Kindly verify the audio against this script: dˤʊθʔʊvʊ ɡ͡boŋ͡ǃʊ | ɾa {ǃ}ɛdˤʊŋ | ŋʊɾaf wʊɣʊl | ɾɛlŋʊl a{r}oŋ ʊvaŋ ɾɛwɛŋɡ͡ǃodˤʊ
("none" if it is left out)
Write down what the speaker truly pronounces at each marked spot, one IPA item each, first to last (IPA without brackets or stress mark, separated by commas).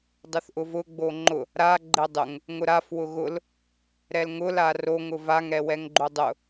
ɡ͡ǃ, r